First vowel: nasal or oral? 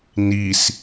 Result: oral